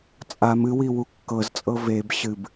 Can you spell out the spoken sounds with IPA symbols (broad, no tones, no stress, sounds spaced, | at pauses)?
t͡sʼ a m ɨ w i w u kː ɤ z t͡sʼ ɤ v e b ɕ ɨ b